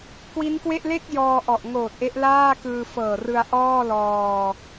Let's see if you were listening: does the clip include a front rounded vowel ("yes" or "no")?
no